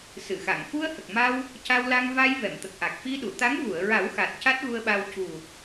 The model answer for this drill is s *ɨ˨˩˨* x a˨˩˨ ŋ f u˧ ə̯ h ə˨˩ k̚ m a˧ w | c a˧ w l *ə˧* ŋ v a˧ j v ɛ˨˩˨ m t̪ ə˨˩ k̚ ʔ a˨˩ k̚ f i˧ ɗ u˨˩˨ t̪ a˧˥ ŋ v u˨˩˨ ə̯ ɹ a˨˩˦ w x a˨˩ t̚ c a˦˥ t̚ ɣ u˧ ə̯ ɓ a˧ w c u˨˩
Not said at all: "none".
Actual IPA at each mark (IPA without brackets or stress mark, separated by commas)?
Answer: ɨ˨˩˨, a˧